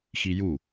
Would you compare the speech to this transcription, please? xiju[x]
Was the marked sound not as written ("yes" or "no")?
yes